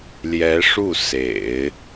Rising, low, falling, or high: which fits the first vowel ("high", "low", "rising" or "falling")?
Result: rising